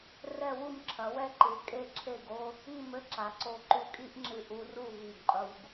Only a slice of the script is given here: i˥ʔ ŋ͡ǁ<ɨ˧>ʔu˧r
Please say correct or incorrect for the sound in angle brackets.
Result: correct